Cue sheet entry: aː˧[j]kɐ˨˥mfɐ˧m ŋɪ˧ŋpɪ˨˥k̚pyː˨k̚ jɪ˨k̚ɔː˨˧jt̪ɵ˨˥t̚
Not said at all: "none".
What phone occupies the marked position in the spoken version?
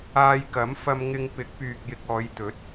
j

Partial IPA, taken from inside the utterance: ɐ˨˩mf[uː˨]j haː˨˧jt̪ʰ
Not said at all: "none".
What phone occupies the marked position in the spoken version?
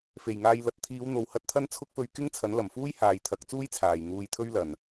uː˥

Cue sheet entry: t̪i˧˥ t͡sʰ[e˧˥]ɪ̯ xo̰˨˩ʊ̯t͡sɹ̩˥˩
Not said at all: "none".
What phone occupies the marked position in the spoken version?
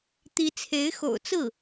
e˧˥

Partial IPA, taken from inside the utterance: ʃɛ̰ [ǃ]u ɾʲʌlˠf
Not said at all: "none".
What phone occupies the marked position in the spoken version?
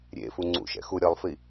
x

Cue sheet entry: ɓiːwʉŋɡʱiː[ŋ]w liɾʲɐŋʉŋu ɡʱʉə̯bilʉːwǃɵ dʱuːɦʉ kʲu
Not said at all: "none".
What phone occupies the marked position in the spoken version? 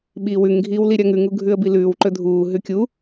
none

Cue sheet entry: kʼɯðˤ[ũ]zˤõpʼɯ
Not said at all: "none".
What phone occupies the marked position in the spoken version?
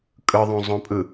ũ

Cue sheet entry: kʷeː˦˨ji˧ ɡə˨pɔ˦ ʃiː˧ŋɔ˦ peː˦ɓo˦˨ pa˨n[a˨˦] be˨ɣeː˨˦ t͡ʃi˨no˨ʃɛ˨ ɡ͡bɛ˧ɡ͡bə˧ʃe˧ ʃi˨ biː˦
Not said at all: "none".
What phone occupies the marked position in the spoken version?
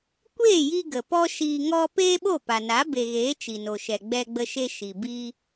a˨˦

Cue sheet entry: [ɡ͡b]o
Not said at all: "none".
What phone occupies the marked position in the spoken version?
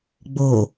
ɡ͡b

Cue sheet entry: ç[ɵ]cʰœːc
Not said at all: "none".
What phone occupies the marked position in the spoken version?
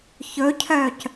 ɵ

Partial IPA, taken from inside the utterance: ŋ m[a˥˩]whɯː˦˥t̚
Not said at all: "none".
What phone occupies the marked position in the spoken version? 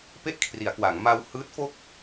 a˧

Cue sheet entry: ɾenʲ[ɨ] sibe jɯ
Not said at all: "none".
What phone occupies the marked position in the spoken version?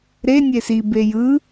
e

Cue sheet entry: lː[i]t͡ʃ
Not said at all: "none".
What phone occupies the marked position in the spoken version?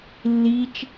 i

